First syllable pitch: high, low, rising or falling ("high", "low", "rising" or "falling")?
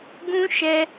high